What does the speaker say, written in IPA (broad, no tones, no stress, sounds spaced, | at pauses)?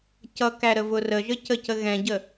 c ʌ k æ ɾ ə v ʊ r ə ʒ ə c ə c ə ɣ ɛ̃ ɟ ə